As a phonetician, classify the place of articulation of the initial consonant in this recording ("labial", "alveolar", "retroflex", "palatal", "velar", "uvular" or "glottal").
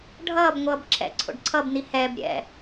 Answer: retroflex